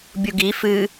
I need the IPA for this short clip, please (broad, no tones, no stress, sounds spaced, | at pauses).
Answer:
bʲ u ɡ i f ɨ